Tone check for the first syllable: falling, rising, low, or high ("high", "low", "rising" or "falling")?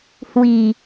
low